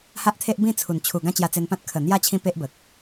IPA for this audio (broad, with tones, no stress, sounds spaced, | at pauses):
h a˦ ʔ t̪ʰ e˦ ʔ b ĩ˥˧ t͡sʰ u˨˩ n t͡ɕʰ u˨˩ ɡ ã˦ t͡ɕ j a˧ t͡s e˧ n p ã˦ t̚ kʰ ə˨˩ n̪ j a˥˧ t͡ɕʰ ĩ˦ p e˦ ʔ b ə˨ k̚